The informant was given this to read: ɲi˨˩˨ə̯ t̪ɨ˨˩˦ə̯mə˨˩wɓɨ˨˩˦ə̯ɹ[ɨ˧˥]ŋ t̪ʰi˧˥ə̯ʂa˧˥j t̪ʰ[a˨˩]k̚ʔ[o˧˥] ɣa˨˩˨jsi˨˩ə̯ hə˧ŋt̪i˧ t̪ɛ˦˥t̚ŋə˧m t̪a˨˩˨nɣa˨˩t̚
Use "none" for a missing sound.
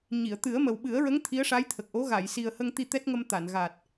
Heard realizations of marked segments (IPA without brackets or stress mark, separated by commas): ə˧˥, ə˨˩, o˧˥